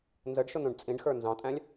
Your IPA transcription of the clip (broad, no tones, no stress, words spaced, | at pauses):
nzəɖʃʊnũɖ t͡sʼĩɖxə˞ nzɑ̃tʼæ̃lʲ